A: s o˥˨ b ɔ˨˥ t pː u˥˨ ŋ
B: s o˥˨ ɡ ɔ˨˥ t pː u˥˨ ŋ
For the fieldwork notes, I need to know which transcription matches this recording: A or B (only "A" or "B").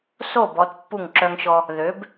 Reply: A